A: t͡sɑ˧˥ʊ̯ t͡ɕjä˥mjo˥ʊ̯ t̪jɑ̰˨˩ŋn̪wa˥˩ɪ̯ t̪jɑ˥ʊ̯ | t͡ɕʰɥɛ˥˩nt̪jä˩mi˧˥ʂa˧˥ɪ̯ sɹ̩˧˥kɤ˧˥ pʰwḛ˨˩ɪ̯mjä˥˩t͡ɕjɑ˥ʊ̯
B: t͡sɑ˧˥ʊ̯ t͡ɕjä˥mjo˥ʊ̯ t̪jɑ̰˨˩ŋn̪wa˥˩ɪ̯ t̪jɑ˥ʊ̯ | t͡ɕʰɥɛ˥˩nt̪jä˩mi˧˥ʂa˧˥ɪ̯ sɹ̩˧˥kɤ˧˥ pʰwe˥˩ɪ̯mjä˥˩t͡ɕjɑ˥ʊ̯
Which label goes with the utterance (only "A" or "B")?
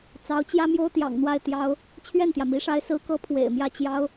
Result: A